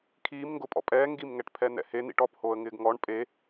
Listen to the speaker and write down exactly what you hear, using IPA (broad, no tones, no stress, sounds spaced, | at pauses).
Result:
kʰ iː m ŋ ɡ ʊ pʼ ɔ̰ pʼ ɛː ŋ ɡ i m ŋ ɛ ʈ pʰ ɛ n̪ ɛ̰ h e n̪ ḭ ʈ ɔ p h oː ə̯ ŋ ɪː ɡ ŋ ɔ ɳ pʼ e